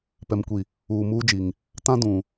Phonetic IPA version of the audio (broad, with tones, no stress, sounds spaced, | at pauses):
p ɛ˨ m kʷ i˨ | uː˨ m uː˦ d͡ʒ i˨ ŋ | t ã˦ d ũ˨